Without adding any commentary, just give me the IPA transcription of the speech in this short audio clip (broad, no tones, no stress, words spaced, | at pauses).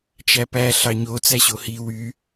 t͡ʃæpæ ɬɑɲo t͡sæɕohi wy